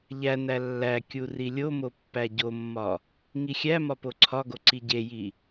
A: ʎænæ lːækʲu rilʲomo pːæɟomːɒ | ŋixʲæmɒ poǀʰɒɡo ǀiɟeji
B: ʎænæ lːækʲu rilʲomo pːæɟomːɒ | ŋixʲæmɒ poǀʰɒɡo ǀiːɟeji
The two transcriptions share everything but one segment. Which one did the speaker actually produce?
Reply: A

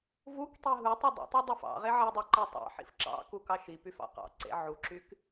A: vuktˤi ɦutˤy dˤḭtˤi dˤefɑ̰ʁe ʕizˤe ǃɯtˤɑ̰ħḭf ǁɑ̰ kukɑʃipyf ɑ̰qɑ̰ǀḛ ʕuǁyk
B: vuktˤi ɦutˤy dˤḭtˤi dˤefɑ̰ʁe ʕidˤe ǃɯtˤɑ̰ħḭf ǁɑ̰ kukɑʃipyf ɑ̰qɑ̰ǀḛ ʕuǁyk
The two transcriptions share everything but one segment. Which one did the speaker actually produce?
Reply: B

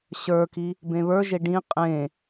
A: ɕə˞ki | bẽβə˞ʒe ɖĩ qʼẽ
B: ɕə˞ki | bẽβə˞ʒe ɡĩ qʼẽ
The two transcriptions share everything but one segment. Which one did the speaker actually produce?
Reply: A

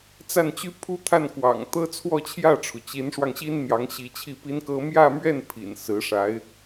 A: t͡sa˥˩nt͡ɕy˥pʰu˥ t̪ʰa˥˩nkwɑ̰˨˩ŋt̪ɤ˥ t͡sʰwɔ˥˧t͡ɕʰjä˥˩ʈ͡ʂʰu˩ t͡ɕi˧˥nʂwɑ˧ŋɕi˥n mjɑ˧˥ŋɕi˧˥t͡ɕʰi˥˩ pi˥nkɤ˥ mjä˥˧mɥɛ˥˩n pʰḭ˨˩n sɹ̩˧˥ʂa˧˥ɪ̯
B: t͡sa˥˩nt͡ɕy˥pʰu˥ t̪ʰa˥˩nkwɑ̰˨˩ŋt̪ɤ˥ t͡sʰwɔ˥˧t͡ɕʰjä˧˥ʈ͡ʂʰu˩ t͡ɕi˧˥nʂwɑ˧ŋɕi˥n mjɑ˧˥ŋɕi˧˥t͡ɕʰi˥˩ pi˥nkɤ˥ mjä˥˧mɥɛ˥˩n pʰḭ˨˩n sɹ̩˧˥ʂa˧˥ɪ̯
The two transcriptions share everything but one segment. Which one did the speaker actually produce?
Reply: A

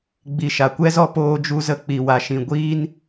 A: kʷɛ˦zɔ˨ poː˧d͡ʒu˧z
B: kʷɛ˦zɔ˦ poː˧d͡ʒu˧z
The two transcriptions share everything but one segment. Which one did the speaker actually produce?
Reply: B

